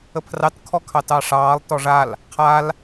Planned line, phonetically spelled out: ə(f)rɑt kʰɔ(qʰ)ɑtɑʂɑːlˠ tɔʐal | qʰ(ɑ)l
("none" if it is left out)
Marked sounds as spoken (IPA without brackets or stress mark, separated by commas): pʰ, kʰ, a